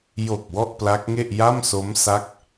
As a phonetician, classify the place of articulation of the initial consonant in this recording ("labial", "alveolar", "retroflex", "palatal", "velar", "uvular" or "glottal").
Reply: palatal